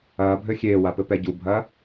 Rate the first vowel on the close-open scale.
open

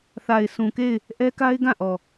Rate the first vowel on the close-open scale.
open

